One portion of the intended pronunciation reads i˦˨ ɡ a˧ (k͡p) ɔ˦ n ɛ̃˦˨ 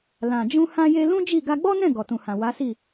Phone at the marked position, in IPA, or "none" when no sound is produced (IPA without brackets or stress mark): ɡ͡b